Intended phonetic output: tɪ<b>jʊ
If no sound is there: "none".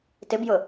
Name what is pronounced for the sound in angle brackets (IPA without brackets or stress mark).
b